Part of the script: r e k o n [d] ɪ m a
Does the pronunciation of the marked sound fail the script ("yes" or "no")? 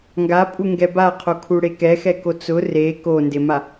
no